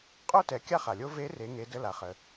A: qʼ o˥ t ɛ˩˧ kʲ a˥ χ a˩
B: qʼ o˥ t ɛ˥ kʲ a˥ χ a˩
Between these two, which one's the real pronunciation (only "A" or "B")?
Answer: A